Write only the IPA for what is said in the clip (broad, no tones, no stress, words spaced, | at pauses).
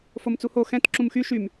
fomt͡suho xɛ̃t ǁũmxy ʃym